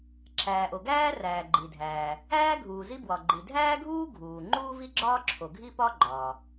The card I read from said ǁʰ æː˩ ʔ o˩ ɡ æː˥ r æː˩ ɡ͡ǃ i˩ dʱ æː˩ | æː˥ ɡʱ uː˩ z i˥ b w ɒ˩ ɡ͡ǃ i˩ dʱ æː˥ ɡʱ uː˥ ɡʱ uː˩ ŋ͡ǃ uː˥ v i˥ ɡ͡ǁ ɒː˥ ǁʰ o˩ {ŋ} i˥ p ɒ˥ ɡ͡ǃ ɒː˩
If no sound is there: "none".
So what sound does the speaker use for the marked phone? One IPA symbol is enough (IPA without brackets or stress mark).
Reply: ɡʱ